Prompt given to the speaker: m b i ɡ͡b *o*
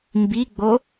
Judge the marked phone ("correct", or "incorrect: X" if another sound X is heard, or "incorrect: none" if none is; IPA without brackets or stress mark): correct